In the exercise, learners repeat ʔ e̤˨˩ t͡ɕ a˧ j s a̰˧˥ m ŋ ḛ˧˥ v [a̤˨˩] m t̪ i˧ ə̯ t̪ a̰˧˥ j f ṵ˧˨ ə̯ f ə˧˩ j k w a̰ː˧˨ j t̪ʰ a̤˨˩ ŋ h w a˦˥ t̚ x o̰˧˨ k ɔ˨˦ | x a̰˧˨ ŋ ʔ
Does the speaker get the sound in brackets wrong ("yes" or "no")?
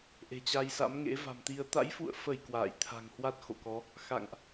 no